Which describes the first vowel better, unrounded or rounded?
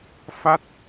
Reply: unrounded